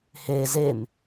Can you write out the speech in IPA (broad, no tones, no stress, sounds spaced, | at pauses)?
h e z e m